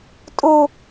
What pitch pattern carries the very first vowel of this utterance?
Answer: high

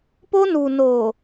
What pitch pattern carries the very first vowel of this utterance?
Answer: high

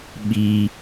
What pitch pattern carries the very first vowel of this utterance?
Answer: low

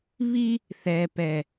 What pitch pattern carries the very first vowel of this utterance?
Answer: high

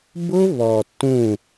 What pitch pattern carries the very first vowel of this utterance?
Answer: high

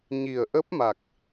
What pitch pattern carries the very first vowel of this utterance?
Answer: low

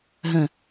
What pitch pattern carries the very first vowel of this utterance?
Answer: low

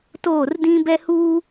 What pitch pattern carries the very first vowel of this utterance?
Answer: falling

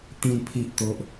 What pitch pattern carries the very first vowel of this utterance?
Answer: low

